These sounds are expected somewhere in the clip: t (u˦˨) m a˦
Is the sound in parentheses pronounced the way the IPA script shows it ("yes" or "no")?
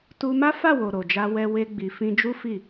no